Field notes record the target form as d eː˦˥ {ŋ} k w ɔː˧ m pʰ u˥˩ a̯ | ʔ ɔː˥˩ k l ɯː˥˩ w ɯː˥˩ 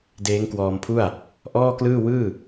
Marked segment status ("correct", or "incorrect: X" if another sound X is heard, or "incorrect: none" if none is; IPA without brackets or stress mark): correct